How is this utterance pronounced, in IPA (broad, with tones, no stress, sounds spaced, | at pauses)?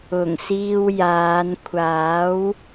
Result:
ʊ˨˩ ŋ s iː˧ w j aː˨˧ n kʷʰ aː˨˥ w